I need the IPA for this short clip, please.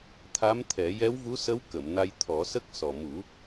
t̪ʰa˧˥mt̪ʰɛ˨˩˦ jɛ˧˥wvu˧˥sə˧˥w kə˨˩˨mna˧jt̪ʰɔ˨˩˦sə˦˥k̚ sɔ˨˩ mu˨˩˦

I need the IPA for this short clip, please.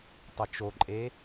tˤət͡ʃoǃʼe

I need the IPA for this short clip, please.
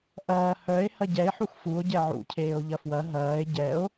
ʔɐː hœe̯ hɐɟɛe̯ħux fuo̯ ɟɛʕṵcʰeːo̯ ʎɐfwɐ ɦɐːe̯ ɟɛo̯

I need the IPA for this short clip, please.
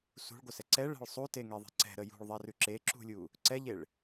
sṳɭɡʷəsɛ ǀɛɭɛ̤ɭ sˤuteŋeðˤe̤ ǀɛ̤ɾə jṳɭðˤɛrʉ ǁeǁṳlʲu | ǀɛʎeɭ

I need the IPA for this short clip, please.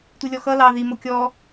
tʷilʲɔxʌ lɑ ði mokʲɔ

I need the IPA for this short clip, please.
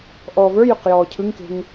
ʔɔːvə˞jʏq jɔːcʰɯŋke̤ŋ

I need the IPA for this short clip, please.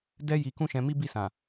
dɛ˦ ji˧kũ˦ʃɛ̃˧ mi˦bi˦˨sã˨

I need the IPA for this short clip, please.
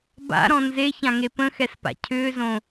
ba̰ɾɔ̃ nzeçãŋe pə̃xɛspa̰ cʰʏːzõ

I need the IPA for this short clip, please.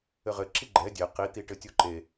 ɘʁɘ ǁiɡ͡ǃɛ dʲe qi t̪iʈɘtʲoǃe

